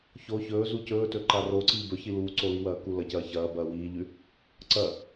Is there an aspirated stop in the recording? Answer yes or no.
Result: no